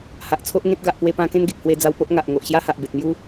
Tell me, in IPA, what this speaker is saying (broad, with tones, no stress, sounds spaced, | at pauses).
h a˨ ʔ t͡sʰ o˦ ʔ ŋ ẽ˦ t̚ ɡ a˨ ʔ p w e˧ p ã˧ k ẽ˦ n ɡ e˨ k̚ h w e˧ d͡z a˧ w p o˦ ʔ ŋ a˨ ʔ ŋ o˨ ʔ ɕ j a˦ h a˨ ʔ b e˨ t̚ m j u˦